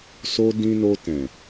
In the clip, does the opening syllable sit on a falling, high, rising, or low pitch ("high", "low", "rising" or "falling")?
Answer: high